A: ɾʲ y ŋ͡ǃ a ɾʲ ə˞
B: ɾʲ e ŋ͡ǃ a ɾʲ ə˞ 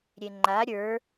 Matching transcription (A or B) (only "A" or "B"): B